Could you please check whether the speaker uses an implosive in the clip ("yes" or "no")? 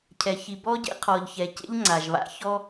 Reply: no